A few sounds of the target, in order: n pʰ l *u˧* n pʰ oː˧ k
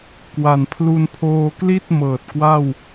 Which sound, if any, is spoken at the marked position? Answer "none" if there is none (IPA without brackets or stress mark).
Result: u˧